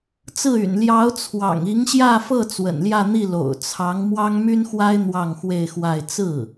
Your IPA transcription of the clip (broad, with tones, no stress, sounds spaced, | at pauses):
t͡s ɹ̩˥˩ y̰˨˩ n l j ɑ˧˥ ʊ̯ t͡sʰ w ɑ̰˨˩ ŋ i˧˥ ŋ ɕ j ä˥˧ f ɤ˥˩ t͡s w ə̰˨˩ n l j ä˥˧ n̪ i˥˩ l o̰˨˩ ʊ̯ t͡sʰ ɑ˧˥ ŋ m w ɑ˥ ŋ m y˥ n x w a˥ ɪ̯ n̪ w ɑ˥˧ ŋ x w e˥˧ ɪ̯ x w a˥˧ ɪ̯ t͡s ɹ̩˥˩